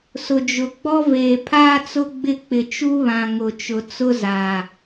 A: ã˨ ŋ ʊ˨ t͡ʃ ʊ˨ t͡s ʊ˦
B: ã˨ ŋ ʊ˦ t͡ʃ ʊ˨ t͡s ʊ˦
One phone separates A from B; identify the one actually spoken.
A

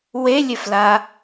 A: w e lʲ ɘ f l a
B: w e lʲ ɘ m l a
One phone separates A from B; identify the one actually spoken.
A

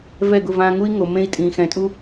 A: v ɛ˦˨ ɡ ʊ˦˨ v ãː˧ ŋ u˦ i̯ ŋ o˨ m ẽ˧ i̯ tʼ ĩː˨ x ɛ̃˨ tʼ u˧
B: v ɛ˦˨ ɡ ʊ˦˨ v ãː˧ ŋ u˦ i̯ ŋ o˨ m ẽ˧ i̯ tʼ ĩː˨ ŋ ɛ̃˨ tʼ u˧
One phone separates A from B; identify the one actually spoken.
A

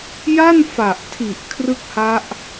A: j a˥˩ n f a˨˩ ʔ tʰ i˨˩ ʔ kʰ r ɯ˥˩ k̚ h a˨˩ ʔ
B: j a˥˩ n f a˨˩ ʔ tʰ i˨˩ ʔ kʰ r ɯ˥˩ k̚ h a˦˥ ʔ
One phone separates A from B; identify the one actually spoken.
B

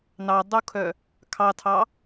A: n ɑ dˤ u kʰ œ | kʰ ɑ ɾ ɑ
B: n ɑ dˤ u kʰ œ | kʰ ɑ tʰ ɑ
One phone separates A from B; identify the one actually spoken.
B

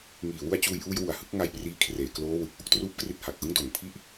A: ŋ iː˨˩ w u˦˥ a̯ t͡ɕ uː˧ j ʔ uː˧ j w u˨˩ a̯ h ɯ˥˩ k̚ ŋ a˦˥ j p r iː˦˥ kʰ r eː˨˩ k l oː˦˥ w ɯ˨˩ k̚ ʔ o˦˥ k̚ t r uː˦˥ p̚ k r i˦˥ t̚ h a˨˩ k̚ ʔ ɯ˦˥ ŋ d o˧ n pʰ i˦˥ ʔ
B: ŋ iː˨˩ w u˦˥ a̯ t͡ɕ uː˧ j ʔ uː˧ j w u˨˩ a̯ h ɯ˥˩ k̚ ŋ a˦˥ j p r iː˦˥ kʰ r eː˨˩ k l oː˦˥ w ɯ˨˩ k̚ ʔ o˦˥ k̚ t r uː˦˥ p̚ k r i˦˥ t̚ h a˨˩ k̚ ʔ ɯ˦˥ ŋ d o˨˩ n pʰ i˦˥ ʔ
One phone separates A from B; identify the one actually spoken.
B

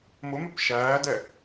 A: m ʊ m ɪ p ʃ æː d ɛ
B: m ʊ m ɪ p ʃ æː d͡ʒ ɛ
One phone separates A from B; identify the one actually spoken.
A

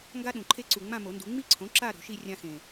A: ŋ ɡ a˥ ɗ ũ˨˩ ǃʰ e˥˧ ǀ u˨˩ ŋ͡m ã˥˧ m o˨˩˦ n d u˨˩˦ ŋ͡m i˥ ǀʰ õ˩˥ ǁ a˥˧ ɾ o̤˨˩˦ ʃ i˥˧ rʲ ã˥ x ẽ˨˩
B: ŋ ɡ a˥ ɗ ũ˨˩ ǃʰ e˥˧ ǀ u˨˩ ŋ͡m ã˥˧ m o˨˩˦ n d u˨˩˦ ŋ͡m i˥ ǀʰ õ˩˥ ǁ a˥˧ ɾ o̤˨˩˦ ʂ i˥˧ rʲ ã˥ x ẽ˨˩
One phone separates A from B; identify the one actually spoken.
A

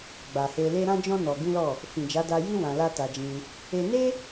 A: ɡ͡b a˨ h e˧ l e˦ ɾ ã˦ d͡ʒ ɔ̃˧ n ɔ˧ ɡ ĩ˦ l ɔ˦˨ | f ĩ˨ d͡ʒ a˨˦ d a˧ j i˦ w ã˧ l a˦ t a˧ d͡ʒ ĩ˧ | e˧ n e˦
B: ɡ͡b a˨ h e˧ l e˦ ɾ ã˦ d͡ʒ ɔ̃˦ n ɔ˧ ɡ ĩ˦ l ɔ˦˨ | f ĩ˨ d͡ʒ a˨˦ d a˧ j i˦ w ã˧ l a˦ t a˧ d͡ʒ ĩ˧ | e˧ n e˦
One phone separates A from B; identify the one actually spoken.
B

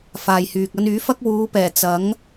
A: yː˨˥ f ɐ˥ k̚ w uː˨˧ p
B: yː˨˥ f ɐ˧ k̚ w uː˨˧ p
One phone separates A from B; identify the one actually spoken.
A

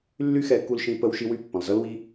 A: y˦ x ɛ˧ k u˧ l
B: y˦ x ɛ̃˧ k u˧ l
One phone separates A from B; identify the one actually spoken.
A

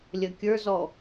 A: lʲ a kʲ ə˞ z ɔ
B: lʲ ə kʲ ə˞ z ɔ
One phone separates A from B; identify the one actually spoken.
B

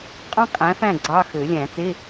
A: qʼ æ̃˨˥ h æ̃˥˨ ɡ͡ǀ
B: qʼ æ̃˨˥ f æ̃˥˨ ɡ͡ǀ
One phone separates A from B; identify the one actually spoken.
B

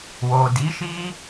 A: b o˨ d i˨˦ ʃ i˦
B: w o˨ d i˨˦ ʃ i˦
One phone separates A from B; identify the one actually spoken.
B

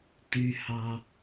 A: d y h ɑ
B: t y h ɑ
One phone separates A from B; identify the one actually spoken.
B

